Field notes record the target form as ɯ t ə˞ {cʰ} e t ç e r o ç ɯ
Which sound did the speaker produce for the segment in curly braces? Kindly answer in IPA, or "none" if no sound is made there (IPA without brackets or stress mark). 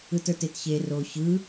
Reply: t